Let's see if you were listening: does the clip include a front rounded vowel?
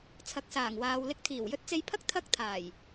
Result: no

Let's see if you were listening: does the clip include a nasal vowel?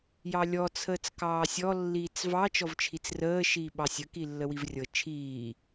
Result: no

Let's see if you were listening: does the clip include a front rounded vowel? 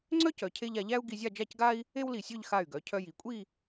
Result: yes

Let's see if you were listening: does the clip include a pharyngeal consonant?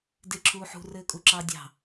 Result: yes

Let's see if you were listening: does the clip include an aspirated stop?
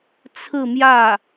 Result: yes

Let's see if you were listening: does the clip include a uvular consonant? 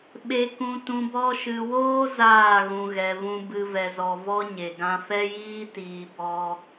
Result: no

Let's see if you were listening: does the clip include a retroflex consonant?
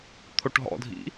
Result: yes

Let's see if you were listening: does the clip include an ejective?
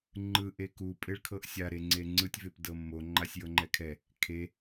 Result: yes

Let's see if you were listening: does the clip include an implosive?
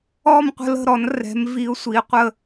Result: no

